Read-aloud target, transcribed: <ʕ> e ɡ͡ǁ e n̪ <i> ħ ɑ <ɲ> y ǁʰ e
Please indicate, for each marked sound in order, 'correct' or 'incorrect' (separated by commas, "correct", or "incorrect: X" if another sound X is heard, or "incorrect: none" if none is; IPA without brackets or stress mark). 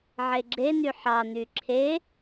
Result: correct, incorrect: y, incorrect: n̪